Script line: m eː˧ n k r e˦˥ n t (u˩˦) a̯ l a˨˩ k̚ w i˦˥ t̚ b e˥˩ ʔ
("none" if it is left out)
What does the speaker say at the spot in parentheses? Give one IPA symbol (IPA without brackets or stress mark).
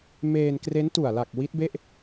u˨˩